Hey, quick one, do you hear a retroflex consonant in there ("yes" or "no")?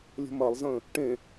yes